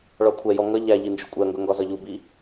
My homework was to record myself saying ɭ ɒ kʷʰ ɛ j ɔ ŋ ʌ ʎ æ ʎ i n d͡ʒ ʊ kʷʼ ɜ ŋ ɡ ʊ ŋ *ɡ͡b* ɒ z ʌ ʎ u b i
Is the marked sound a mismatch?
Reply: yes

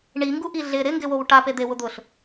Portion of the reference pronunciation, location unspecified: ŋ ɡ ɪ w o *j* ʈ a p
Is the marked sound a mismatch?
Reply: yes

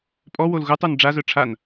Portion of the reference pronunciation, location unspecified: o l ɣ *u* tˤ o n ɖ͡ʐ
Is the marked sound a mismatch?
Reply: no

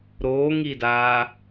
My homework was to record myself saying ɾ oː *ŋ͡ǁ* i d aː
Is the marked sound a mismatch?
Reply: yes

